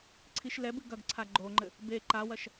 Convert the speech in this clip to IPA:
ǀʰ i ʃ l ɛ b ɨ ɡ ɐ ɡ ǀʰ a ɡ͡ǃ o ŋ͡ǃ ɘ | b e ǃ a w ɐ ʃ

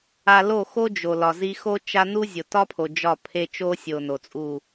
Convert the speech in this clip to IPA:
a˧ l o˦˨ x o˦ d͡ʒ o˨ l ɒ˨ z i˧ x o˦ t͡ʃ a˦ n u˦ zʲ o˨ t ɒ˦ pʰ o˨ d͡ʒ ɒ˦˨ pʰ e˧ t͡ʃ o˦ sʲ o˨ n o˨ t͡sʼ u˦˨

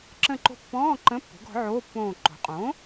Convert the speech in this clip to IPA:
ǁ ə̃˦˨ ǃ o̤˦˨ pː ɔ̃ː˧˥˧ ǃ ə̃˧˥˧ pː o̤˩˥ ɡ ɔ̤˩˥ ʕ oː˧˥˧ pː õː˦˨ ǃ o̤˩˥ qʼ õ˩˥

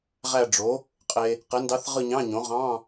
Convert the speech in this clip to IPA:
ʁ æ˦˨ ɖ͡ʐ o˩˥ | qʼ e˨ | q e˩˥ n d ɑ˧˥ θ ʁ ɯ˦˨ ɲ ɑ̃˧˥˧ ɲ õ˩˥ ʁ ɑ̃˧˥˧

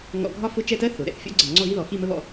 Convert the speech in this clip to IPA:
ŋ ɔ̰˧ ɡʱ ɒ˥˧ f ʊ˥˧ t͡ʃ ɛ˥˧ t ɜ˥ θ ʊ˩˧ ɾ ɛ̰˧˩ θ fʲ ɔ̰˥ ɡ͡ǀ ə˧˩ ŋ͡ǀ ɔ˥˧ ɣ i˥ ð ɔ˩˧ x i˥˧ m ə˥ β ɔ̰˥˧

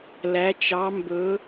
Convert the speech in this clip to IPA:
l æ˩˧ t͡ʃ ɑ˩˧ m b ɵ˩˧

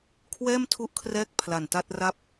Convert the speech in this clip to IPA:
kʰ w ɛː˥˩ m tʰ u˦˥ ʔ kʰ r ɛː˦˥ k̚ pʰ l a˨˩ n t a˥˩ t̚ r a˥˩ p̚

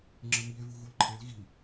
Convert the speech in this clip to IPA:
ŋ͡ǁ ə m i e̯ v u ɣ u l ǃʰ e l ɣ i

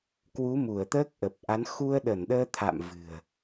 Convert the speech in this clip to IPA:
k w u˨˦ m u˧˩ ə̯ t̪ əː˦˥ k̚ ʔ ə˨˩ p̚ ʔ a˨˦ n x u˧ ə̯ ɗ ə˧˩ n ɗ əː˧ t̪ʰ a̰˧˨ m v ɨ̤˨˩ ə̯

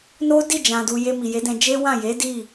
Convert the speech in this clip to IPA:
n o˦ d i˦˨ d͡ʒ ã˨ d u˨ j e˧ m i˨ j e˨˦ d ɛ̃˧ d͡ʒ e˦ w ã˦˨ j e˨˦ d i˦˨

